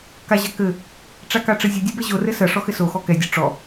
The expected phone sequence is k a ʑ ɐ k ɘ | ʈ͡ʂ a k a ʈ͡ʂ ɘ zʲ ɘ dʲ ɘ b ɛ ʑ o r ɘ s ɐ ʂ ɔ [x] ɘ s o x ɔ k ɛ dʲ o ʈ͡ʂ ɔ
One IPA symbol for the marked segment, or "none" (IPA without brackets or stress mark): x